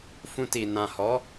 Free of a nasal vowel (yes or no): no